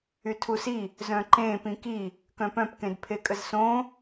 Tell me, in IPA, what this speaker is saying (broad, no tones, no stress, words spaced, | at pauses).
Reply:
ytʰusi | zœ̃ǃẽ pĩki | kœ̃pœ̃p kẽdpʰekʼəzsõ